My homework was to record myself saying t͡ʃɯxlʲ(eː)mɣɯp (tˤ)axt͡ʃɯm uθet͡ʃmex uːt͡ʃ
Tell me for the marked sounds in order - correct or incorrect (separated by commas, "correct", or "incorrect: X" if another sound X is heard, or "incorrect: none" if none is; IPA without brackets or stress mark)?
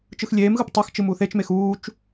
correct, correct